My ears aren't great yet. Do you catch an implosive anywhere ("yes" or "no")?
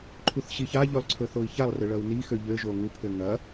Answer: no